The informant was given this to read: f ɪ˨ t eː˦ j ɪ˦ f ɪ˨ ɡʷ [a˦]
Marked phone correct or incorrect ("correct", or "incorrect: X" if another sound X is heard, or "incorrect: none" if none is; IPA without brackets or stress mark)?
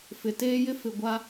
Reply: correct